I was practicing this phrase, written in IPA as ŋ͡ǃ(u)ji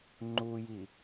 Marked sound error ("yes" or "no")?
no